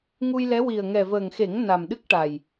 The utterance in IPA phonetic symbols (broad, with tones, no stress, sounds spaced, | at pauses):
ŋ u˧ j l ɛ˧˥ w i˨˩ ə̯ ŋ ɛ˨˩ v əː˨˩ ŋ x e˨˩˦ ŋ n a˨˩ m ɗ ɨ˦˥ k̚ ʈ a˨˩ j